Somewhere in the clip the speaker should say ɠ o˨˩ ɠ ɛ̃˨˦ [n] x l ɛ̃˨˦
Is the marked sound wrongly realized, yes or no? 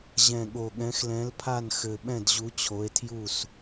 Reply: yes